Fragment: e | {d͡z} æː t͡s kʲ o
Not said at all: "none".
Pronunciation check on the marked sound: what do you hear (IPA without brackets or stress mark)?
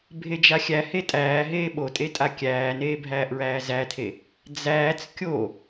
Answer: d͡z